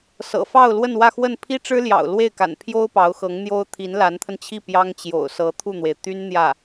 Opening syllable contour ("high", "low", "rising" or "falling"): low